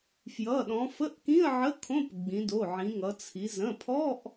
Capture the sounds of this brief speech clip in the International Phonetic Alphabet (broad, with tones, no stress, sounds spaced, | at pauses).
f j ʌ˩˧˩ ɗ ɔ̃˩˧ f ə˧˥˧ ʔ k ĩ˧˥˧ ə̯ ʕ ə˧˥˧ kʰ õ˧˥˧ p ɡ͡b ĩ˩˧ d o˩˧˩ ʕ ĩ˩˧ ŋ ʌ˩˧ t͡sʰ i˩˧ z ə̃˩˧˩ pʰ ɔ˧˥˧ ʔ